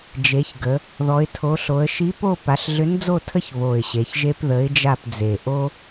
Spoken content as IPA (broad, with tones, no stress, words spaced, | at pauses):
d͡ʒe˩˧çɡə˩˧ | ðɔ˩˧ɪ̯tʰo˩˧ɬo˩˧ə̯ ʃi˨˥po˦˨ pa˩˧ɬɮʏ˨˥nd͡zo˦˨tʰə˦ç βo˨˩ɪ̯ɕe˩˧çʒe˦p ðə˨˥ɪ̯d͡ʒa˦˨pd͡ze˨˩ ʔo˦